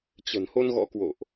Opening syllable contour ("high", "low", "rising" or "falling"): low